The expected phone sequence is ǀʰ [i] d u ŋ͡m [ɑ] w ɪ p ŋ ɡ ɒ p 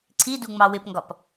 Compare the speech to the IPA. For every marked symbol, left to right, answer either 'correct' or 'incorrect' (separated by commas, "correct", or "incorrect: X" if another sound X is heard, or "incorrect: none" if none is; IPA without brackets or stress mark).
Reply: correct, correct